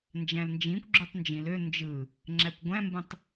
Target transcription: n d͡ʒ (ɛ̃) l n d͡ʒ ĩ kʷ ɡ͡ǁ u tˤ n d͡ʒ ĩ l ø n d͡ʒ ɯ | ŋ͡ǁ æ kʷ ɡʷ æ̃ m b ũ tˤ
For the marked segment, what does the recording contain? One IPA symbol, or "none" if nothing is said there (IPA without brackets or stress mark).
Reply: æ̃